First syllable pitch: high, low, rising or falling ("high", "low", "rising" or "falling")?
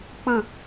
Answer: falling